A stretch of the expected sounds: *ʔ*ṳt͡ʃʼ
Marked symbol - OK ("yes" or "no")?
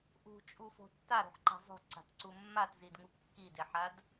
yes